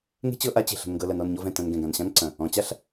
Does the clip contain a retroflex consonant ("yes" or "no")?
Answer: no